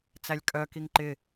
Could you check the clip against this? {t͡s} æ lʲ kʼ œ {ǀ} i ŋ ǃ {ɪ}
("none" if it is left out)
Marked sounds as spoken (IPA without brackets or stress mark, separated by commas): t͡s, k, ɪ